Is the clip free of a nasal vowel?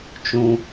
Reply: no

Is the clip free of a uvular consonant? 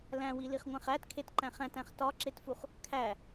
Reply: no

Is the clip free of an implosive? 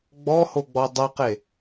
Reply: yes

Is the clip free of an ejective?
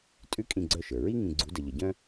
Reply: no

